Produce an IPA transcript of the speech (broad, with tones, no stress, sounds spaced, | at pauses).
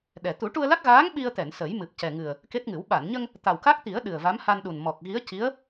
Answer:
ɗ ɛ˨˩ t̪ u˨˩˦ ʈ u˧ ə̯ l a˦˥ k̚ ɣ aː˧˥ ŋ ɓ i˧ ə̯ t̪ ɛ˨˩˨ n s ə˨˩˦ j m ɨ˨˩ p̚ c ɛ˨˩ ŋ ɨ˨˩ ə̯ | k e˦˥ t̚ ŋ ɨ˨˩˦ w ɓ a˨˩˨ n ɲ ə˧ ŋ | t̪ a˨˩ w k a˦˥ k̚ t̪ i˨˩˦ ə̯ ɗ ɨ˨˩ ə̯ v a˧˥ m h a˧ n ɗ u˨˩ n m ɔ˨˩ k̚ ɣ i˧˥ ə̯ c i˧˥ ə̯